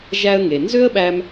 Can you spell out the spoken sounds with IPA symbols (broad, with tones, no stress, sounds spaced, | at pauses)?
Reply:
ʒ æ˧ ə̯ ŋ e˩ n z ø˥ ə̯ ɓ æ˧ m